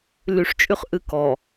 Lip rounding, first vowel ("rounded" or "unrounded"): rounded